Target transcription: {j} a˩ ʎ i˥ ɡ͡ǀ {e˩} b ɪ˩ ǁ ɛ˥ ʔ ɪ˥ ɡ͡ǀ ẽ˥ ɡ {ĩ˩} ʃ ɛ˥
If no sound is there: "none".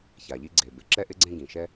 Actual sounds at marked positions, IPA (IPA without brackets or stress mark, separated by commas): ç, e˩, ĩ˩